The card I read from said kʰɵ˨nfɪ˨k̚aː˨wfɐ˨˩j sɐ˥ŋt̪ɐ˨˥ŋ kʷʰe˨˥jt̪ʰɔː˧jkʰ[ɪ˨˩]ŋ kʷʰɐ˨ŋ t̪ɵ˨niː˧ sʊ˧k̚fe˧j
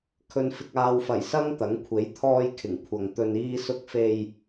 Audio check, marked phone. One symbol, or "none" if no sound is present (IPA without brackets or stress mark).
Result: ɪ˨˩